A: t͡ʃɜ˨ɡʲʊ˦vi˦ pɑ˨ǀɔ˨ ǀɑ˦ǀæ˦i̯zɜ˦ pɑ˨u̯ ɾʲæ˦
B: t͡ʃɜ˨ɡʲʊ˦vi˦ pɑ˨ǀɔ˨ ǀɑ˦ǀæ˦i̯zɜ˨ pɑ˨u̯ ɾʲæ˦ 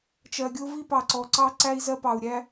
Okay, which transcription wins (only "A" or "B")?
A